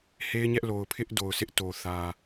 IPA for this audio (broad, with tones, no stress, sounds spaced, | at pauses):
h e˦ ɪ̯ ɲ ɛ˦ ʔ l o˨ ʊ̯ pʰ ɪ˦ ʔ d o˨ ʊ̯ s ɪ˦ ʔ t o˨ θ ä˦